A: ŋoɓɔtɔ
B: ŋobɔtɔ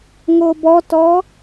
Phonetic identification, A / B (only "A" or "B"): B